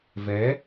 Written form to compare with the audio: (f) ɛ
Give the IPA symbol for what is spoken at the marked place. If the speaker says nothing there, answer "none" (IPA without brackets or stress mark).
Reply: v